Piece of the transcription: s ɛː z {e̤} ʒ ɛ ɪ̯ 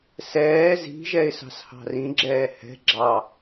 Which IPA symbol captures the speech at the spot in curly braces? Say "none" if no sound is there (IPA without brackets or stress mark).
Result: i̤